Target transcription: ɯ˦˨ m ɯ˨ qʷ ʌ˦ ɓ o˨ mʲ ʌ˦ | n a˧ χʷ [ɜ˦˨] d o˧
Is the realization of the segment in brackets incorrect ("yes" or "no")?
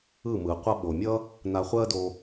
yes